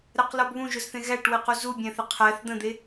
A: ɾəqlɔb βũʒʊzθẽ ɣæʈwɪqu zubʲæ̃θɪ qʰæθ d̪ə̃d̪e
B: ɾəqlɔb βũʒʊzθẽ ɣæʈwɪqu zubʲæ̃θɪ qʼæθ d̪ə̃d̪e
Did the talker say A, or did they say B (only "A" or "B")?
A